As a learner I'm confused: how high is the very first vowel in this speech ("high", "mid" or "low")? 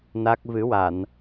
low